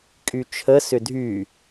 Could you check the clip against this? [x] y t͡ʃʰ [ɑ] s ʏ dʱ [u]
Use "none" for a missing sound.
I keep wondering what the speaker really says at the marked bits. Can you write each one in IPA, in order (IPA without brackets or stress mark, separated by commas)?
kʼ, ə, y